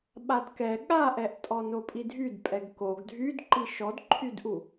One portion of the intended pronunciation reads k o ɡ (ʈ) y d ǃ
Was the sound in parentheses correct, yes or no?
no